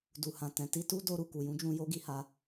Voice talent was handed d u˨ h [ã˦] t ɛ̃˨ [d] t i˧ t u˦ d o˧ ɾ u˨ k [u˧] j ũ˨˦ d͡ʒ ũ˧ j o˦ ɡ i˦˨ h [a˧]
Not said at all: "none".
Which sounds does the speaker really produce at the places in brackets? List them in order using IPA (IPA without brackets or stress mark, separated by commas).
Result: ã˨, none, u˨, a˧